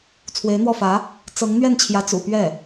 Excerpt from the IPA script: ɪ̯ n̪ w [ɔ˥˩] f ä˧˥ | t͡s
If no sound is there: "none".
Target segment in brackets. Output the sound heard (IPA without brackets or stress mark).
ɔ˥˩